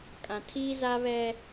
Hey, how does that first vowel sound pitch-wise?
low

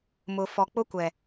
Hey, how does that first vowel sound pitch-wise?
low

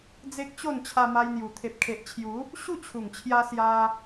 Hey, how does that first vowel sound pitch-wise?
high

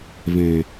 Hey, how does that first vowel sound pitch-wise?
low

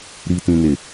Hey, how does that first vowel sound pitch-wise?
high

